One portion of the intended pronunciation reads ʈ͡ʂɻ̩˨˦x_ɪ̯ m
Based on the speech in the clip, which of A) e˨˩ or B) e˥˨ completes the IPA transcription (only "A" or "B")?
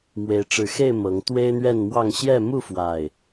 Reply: B